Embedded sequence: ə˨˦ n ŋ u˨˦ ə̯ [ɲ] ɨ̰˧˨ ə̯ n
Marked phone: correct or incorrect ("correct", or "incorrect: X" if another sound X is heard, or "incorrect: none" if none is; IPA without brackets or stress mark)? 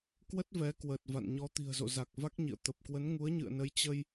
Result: correct